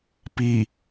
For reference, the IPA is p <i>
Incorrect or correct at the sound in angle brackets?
correct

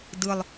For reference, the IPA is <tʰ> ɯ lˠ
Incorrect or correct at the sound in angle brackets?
incorrect: d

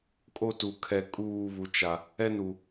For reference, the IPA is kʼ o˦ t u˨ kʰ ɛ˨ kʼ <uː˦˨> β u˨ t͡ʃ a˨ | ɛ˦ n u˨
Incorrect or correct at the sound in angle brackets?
correct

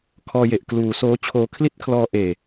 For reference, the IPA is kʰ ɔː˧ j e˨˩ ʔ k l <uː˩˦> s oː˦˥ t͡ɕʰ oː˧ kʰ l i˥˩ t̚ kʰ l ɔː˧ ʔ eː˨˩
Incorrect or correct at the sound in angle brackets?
correct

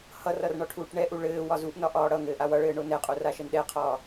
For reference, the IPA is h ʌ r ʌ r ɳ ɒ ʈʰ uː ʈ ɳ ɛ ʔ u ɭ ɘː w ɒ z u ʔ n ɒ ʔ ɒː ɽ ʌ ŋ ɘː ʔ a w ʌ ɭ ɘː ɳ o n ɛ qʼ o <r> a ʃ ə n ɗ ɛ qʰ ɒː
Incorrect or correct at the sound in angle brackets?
correct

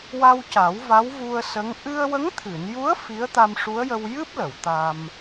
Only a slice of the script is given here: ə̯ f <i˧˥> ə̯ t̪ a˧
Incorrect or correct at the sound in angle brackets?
correct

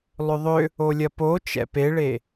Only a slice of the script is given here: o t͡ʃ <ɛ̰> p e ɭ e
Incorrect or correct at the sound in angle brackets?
correct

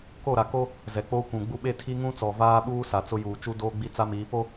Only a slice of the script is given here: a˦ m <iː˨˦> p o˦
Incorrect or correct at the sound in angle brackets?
correct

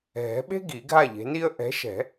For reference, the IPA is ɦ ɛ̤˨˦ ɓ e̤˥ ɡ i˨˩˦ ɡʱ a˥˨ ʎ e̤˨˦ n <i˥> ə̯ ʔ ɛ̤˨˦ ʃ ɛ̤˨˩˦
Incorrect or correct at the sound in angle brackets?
correct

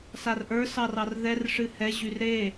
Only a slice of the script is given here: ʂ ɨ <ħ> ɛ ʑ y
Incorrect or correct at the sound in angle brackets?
incorrect: h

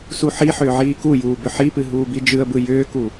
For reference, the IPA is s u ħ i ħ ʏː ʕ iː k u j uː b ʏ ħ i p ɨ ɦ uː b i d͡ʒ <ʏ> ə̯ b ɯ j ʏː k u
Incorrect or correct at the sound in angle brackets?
incorrect: ɨ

